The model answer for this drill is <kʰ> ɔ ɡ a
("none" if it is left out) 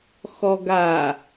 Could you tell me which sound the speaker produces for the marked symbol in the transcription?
x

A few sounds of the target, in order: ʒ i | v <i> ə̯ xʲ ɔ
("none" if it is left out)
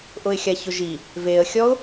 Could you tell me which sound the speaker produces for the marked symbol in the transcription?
e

